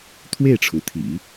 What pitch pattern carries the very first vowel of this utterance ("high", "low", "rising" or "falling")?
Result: falling